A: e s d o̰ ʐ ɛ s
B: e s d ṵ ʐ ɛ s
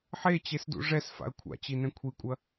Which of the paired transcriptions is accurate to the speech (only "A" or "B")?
B